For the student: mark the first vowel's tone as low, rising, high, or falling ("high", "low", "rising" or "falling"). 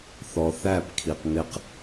low